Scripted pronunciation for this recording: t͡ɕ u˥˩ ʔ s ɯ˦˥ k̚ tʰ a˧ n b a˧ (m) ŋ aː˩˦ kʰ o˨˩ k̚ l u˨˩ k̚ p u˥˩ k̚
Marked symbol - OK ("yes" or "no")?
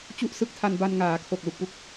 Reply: no